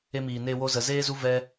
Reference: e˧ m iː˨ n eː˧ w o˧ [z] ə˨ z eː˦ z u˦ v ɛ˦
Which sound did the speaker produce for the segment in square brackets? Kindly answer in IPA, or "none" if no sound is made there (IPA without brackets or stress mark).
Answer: z